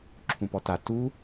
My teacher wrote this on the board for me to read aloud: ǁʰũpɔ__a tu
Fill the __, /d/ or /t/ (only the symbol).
t